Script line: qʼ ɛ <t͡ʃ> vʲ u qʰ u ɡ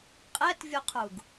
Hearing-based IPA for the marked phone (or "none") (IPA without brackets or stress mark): t